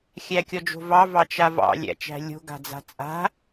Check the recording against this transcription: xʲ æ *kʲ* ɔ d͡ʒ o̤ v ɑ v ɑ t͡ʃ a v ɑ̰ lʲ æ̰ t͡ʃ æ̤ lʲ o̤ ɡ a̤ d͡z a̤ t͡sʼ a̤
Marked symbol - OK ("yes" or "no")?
yes